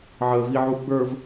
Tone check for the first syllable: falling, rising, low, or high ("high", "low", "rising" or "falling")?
low